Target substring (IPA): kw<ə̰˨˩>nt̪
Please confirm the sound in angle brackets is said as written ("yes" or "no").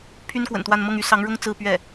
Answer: yes